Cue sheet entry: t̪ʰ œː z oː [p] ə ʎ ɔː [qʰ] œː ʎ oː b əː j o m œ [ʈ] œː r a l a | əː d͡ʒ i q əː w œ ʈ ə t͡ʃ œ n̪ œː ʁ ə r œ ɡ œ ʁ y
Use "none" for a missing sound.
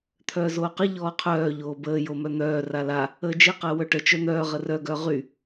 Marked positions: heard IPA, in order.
q, qʰ, n̪

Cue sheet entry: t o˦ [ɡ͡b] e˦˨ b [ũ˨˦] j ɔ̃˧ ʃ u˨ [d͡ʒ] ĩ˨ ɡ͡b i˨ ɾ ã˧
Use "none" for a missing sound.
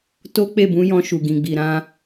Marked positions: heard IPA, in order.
k͡p, ũ˨˦, ɡ

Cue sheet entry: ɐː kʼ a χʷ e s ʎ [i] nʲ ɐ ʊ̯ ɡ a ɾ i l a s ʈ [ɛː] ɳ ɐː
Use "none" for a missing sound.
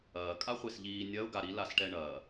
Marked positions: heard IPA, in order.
iː, ɛ

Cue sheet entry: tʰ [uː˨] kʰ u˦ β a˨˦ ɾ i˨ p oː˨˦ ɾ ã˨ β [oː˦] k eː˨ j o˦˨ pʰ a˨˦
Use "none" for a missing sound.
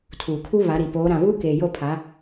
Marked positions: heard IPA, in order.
uː˨, uː˦

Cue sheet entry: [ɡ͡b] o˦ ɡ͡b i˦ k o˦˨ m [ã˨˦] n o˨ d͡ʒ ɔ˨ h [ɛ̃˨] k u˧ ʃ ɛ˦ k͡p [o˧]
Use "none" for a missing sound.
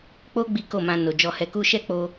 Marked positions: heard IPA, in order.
k͡p, ã˧, ɛ˨, o˦

